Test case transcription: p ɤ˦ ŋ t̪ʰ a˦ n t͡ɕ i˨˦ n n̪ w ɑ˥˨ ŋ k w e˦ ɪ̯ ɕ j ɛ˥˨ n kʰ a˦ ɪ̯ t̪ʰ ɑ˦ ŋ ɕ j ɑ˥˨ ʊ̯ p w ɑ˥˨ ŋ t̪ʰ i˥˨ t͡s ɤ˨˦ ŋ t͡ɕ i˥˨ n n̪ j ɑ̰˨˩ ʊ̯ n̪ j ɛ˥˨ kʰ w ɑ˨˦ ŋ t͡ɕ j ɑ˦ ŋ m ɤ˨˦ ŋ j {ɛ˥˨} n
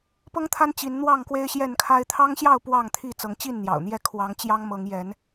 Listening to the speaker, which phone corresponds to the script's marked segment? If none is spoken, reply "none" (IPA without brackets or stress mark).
ɛ˨˦